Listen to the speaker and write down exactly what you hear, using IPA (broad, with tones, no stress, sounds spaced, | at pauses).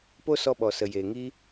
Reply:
p o˦ s ɔ˧ ɓ ɔ˨ s ə˨ j eː˨ ŋ i˦